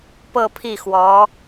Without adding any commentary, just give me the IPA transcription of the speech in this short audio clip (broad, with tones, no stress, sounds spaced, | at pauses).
p ɤ˥˧ pʰ i˥˩ x w ɔ˧˥